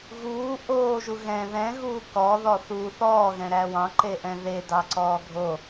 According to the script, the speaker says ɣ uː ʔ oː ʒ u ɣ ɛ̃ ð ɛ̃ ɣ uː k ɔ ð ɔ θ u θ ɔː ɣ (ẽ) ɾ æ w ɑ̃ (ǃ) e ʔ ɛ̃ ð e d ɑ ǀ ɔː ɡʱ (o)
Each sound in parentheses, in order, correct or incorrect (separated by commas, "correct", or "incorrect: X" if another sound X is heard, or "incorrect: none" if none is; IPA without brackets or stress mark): incorrect: ɛ̃, correct, correct